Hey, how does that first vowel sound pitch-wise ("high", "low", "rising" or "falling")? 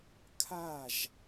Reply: falling